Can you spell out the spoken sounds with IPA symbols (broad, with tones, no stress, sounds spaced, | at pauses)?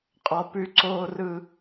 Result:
qʼ ɔ˦ p ʉ˦ ǀ oː˦ r ɯ˦